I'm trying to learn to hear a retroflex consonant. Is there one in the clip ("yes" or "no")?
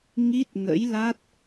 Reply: no